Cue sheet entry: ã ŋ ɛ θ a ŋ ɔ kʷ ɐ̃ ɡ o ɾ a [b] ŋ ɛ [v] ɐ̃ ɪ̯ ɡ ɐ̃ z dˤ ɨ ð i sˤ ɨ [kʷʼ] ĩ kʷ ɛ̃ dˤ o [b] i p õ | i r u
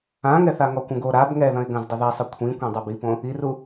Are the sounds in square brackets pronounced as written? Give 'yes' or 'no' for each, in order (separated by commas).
yes, no, no, yes